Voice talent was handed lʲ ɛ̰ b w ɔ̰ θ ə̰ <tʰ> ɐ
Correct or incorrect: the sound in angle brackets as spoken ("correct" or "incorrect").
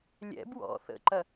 incorrect